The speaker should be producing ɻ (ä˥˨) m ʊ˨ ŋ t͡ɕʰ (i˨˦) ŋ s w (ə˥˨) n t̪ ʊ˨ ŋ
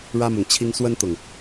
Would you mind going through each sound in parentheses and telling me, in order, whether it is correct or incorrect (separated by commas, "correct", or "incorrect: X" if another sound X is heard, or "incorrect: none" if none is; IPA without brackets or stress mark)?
incorrect: ä˦, incorrect: i˦, incorrect: ə˦